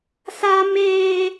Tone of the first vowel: high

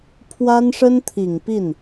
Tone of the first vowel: high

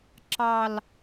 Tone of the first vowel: falling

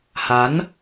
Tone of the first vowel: rising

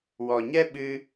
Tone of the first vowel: low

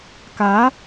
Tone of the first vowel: rising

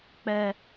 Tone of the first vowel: high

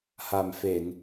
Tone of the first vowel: low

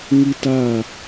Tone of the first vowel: high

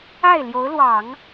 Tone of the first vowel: falling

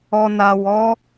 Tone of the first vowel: low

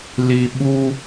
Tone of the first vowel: low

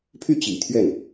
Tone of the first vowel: falling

